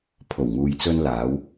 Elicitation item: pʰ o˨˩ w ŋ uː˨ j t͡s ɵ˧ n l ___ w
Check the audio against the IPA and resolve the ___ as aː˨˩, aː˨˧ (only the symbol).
aː˨˧